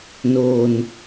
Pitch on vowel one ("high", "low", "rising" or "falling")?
low